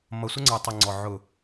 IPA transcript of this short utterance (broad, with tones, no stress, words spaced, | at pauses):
mʌ˨sʷə˦ŋ͡ǀə˞˨tˤə˨ ŋ͡ǀɔ˨ ʕʊ˨